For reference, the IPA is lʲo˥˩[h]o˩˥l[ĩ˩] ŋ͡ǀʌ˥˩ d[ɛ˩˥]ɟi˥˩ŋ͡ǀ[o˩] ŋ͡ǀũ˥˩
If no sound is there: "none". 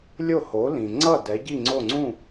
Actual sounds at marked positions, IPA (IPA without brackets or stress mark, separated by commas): h, ĩ˩, ɛ˩˥, o˥˩